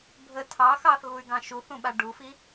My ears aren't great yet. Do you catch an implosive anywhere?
yes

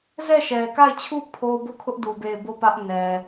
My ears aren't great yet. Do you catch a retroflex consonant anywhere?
no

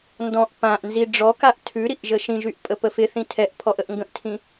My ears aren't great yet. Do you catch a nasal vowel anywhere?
yes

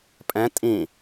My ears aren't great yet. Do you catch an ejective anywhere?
yes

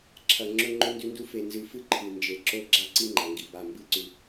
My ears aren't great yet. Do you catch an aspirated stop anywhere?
yes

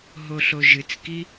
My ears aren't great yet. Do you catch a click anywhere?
no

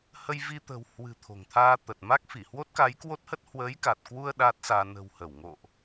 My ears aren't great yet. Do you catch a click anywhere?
no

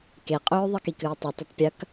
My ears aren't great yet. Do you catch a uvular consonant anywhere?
yes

